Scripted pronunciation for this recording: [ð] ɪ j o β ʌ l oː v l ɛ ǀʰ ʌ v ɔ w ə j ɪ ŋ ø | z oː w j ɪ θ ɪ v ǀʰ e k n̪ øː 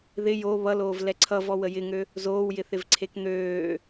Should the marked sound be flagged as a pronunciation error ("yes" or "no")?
no